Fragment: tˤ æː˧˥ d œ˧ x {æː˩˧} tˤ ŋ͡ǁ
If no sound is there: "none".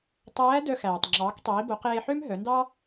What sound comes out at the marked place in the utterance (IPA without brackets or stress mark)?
æː˩